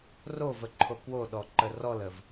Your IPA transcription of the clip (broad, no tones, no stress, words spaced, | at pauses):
rovəǃʰo kwoɗɔǃə rɔləv